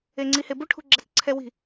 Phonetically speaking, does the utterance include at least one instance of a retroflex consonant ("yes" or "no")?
yes